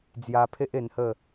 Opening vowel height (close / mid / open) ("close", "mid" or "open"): open